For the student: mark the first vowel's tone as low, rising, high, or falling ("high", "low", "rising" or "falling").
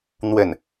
falling